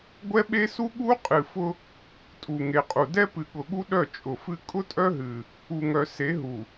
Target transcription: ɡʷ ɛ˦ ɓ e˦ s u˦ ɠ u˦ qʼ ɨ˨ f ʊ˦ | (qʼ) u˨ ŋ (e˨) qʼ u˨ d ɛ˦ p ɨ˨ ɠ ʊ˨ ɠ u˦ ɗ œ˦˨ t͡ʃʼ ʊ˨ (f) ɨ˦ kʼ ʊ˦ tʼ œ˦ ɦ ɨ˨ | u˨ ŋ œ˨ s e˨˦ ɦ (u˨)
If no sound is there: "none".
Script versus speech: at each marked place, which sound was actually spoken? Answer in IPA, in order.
tʼ, e˨, f, u˨

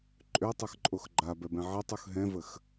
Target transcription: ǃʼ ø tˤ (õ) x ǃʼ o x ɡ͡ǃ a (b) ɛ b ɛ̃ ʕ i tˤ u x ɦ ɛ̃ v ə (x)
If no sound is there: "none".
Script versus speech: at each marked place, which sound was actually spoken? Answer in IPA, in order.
o, b, x

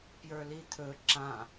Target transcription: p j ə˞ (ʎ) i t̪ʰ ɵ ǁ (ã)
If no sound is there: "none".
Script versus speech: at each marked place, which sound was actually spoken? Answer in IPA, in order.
l, ã

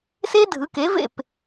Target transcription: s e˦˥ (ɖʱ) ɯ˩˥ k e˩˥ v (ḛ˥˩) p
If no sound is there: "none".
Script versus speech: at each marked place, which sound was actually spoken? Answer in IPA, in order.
dʱ, ḛ˥˩

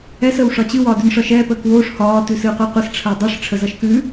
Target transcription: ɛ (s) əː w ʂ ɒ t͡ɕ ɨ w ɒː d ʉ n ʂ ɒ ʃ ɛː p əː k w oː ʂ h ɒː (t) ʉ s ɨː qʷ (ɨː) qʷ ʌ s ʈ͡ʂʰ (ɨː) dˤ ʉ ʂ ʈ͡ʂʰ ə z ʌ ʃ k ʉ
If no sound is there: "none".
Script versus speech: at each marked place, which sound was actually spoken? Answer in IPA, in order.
s, t, əː, əː

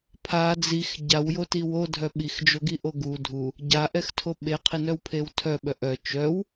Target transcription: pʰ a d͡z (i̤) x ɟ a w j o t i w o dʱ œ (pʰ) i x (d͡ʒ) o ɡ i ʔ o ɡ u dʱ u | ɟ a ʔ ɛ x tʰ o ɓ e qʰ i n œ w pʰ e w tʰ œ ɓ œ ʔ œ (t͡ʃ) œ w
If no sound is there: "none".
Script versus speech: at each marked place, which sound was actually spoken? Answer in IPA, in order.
i, ɓ, d͡ʒ, t͡ʃ

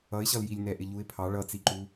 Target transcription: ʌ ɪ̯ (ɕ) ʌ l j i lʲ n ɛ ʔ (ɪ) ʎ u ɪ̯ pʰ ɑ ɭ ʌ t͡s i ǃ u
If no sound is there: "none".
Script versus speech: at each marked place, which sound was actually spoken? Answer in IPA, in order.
ɕ, ɪ

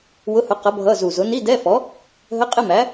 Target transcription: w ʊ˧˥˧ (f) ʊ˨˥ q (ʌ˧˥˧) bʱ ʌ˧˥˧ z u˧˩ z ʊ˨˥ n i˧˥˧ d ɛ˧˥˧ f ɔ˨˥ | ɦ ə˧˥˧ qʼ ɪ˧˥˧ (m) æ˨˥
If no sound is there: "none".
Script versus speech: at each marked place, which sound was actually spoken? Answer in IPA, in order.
h, ʌ˨˥, m

